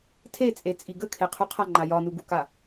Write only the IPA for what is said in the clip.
tʰ e t͡sʼ e t͡sʼ i ɡ ə kʰ e qʰ u qʰ a ŋ͡ǃ a j ɒ n u ɡ u k a

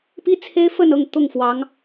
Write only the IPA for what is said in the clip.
p i˥ t͡sʰ e˥ ɪ̯ f ə˥˧ n ɤ˥˧ ŋ t̪ ʊ˥˩ ŋ f w ɑ˧˥ ŋ

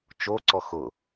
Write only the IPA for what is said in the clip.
t͡ʃ o ǀ ɔ x ʊ

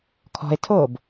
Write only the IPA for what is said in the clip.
kʰ ɔ̤ e̯ tʰ o b

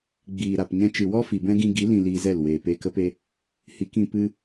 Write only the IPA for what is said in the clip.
ɡ͡b iː˨ ɾ a˨ p ɲ ɛ̃˧ t͡ʃ ɨ˨ w ɔ˦ f i˨ b ɛ̃˦ ɡ ĩ˧ ɡ i˨˦ l ĩ˨ l iː˧ z ɛ˦˨ l w eː˨ p eː˧ k ə˦ p e˧ | h i˨˦ k ĩ˧ p ɨ˧

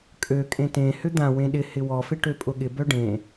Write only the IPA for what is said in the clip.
kʼ ø kʼ ẽ t ẽ h ʏ d̪ ã w ẽ ɗ ɪ h ɪ w ɔ f ɪ ʈ ø pʼ ʊ ɠ ɪ b œ ɖ ẽ

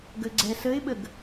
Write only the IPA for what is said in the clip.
ɡ ə ɡ͡ǀ ɛ s ə ɪ̯ ɓ ə ɡ

